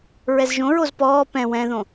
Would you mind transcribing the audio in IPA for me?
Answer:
ɹɛzʒõɹoz pɔː pɛ̃ wɛ̃ðõ

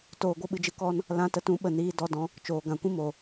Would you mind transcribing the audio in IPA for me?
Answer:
toː˧ɡʷə˦ ɓɨ˧d͡ʒɨ˧kɔ˦n | lã˧tə˧tũ˨˦ ɓə˨niː˧dɔ˧dɔ̃˧ | t͡ʃoː˨ɡã˨ kʷĩ˦mo˨

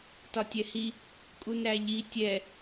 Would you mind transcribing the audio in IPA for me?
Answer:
tɒtʲɛhi | kʼunɾæʎi tʲɛ

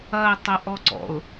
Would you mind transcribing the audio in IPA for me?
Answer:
ɐɪ̯ tˤəʔɔǀɔ̰ʊ̯

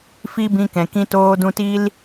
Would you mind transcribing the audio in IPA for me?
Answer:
fi˦bĩ˧kɛ̃˨ kĩ˧toː˧dũ˧ti˦l

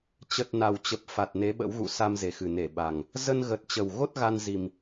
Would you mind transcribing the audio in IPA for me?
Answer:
t͡ɕə˨˩t̚ na˨˩wt͡ɕə˨˩p̚ fa˨˩t̚ne˨˦ɓə̰˧˥wɣṵ˧˨ sa˧mze˨˩xɨ˨˩ne˧˩ ɓa˨˩ŋ | zə˧nɣə˨˩t̚ t͡ɕə˨˩wɣo˦˥t̚ ɣa˧nzi˨˩m

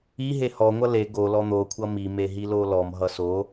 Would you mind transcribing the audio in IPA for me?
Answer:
i ɦehɔ ŋʷʌle ɡo lɔn̪o kʷʰʌmi meɦilolɔm ɦʌso

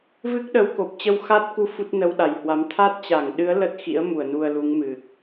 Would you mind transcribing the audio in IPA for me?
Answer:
vɨ˦˥k̚ɗə˨˦w ko˨˩p̚t͡ɕə˧wxa˦˥t̚ku˧ fu˦˥t̚nə˧wɗa˧˩jhwa˨˦m t̪ʰa˦˥t̚t͡ɕa˧˩ŋɗɨ˨˦ə̯ lə˦˥t̚ xḭ˧˥ə̯mu˧˩ə̯ nu˧ə̯lu˨˦ŋ mɨ˨˩k̚

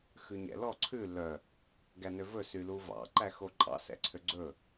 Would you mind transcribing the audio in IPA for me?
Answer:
xʉɲɛ̰lɔ ǀʰʉ lœ | ɡænøvɵ syluvɑ̰ ǃæxoǃʼɑ̰ sɛ̰ǀʰøɡ͡ǀɵ

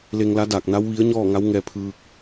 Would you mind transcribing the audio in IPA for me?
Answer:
le˧ŋla˧˥ daː˧˩k̚na˧˥w ʋi˧˥ə̯ɲɔː˥˨ŋa˧˥w ŋɛː˧pʰɯː˧k̚

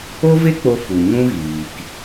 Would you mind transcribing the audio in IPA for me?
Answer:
o˦ve˦k͡po˧ fu˨ɲũ˦ɣiː˨k

